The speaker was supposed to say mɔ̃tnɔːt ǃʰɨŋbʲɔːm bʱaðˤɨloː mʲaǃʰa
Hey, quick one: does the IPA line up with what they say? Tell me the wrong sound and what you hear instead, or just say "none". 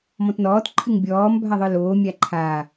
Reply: none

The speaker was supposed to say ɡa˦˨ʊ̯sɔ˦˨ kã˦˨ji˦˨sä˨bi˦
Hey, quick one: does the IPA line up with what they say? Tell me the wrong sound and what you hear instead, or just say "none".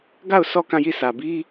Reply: none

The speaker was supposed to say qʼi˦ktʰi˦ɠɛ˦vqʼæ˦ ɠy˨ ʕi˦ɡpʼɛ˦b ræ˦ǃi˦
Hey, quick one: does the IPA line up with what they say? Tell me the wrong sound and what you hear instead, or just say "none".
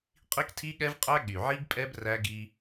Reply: ǃ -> ɡ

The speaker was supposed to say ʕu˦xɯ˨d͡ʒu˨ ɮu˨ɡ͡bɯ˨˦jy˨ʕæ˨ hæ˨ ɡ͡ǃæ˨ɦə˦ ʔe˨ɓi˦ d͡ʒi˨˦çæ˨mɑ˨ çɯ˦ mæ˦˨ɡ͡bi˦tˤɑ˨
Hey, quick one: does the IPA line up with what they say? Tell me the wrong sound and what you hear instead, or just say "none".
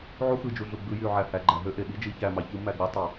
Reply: ə˦ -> ø˦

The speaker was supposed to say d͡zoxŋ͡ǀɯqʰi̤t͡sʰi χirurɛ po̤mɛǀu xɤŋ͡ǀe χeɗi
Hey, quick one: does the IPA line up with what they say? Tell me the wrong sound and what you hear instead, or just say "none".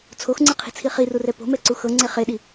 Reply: d͡z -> t͡sʰ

